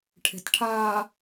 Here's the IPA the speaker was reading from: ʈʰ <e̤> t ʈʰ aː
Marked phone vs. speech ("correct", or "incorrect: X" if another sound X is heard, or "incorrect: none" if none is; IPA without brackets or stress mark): correct